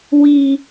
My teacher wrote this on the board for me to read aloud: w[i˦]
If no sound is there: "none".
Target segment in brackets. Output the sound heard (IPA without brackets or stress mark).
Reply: i˦